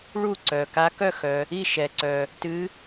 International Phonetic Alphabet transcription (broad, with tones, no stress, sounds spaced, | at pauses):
ɭ u˥˨ ǀ œ˩ k a˧˥ k œ˥˨ x œ˩ | i˥˨ ʃ ɛ˩ ǀ œ˩ | t ɨ˧˥